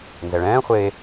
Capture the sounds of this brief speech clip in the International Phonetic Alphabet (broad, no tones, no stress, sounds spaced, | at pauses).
n z ɛ ɭ ɛ̃ː χʷ e